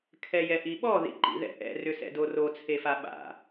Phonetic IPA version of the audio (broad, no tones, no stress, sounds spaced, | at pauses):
kʰ ɛ j ɛ ʔ i ɓ ɔ ð ḭ ǃ ḭ ð ɛ̰ ʔ ɛ̰ r ʏ s ɛ̰ d o r o t͡sʰ e f a ɓ a̰